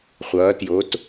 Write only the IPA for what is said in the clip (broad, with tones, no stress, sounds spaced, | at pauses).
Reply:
χʷ ʌː˩˧ t j o˩˧ t